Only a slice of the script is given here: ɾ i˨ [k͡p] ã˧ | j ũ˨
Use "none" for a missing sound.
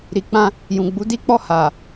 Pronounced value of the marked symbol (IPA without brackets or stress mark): k͡p